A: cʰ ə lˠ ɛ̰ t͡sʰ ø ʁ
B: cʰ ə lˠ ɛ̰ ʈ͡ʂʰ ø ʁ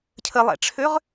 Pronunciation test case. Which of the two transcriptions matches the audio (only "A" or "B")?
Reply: B